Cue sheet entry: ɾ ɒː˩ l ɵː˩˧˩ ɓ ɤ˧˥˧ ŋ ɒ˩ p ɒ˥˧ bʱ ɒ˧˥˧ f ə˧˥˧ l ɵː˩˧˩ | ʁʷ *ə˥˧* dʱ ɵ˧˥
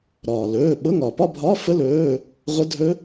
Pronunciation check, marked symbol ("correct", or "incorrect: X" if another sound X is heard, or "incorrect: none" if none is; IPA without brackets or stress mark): incorrect: ə˧˥˧